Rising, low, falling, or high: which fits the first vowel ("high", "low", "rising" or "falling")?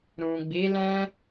low